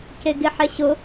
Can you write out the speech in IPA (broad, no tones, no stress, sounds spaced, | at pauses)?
c e ɡ e ħ ɛ ɕ ʊ